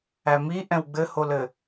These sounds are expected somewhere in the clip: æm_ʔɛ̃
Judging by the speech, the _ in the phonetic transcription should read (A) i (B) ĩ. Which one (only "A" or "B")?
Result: A